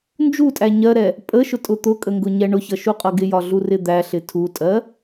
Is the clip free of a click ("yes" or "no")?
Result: yes